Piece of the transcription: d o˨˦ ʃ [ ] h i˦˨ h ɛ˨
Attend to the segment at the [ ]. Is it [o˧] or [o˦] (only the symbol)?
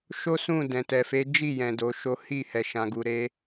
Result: o˦